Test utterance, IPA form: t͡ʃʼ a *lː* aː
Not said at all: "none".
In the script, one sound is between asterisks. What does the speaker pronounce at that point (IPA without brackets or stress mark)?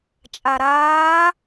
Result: ɾ